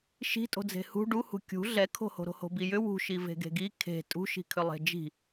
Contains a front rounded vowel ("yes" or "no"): yes